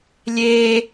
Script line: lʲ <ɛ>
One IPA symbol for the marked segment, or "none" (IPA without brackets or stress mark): e